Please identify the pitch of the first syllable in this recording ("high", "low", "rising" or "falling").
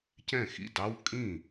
falling